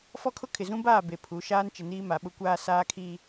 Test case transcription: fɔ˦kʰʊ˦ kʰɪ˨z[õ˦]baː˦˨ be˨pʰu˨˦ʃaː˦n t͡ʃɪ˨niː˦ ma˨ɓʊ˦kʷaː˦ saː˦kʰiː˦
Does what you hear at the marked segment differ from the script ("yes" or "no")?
yes